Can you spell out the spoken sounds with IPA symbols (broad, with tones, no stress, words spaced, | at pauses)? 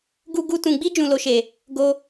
ɡu˦ɡu˦tũ˧ ɡ͡bi˦ d͡ʒũ˧lo˧ʃe˨ | ɡo˦